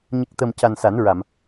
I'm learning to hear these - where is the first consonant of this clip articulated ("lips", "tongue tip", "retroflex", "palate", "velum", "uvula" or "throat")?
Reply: palate